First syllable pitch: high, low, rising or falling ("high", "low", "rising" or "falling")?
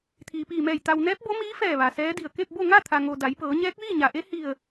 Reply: low